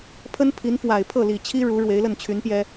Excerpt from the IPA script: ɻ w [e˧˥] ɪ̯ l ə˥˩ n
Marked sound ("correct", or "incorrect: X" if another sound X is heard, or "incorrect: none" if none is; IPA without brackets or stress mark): correct